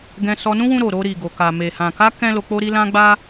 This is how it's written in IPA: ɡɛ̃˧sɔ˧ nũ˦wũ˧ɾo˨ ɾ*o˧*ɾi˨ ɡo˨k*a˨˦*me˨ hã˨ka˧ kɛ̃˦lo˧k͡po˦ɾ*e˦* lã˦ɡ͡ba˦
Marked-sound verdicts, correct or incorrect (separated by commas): correct, incorrect, incorrect